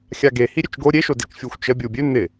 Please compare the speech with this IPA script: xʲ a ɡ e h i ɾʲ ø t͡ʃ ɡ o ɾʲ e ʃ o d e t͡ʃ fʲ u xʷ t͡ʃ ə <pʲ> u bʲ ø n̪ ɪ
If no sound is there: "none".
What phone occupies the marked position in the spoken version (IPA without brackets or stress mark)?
bʲ